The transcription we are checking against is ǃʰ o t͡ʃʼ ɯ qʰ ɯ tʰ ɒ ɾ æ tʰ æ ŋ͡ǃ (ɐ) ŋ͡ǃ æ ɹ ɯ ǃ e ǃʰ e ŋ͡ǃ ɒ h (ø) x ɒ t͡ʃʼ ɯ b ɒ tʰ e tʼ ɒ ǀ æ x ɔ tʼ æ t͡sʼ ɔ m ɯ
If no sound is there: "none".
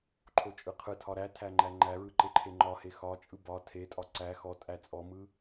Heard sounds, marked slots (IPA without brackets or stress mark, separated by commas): æ, e